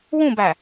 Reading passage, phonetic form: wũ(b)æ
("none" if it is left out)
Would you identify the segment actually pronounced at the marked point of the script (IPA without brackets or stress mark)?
b